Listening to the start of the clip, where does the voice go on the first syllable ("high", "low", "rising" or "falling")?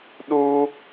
high